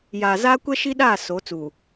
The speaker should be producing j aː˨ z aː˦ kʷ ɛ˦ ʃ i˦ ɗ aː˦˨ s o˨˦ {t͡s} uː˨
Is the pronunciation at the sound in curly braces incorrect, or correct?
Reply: correct